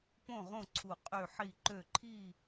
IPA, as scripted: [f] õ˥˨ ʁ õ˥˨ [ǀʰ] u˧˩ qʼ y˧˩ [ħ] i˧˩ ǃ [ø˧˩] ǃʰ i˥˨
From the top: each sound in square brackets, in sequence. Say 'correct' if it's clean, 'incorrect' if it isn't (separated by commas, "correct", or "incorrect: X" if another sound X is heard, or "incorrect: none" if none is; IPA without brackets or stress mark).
incorrect: p, correct, correct, correct